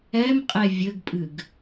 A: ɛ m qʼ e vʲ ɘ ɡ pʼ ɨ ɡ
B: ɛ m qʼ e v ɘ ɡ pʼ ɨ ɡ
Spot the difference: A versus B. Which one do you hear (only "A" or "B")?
A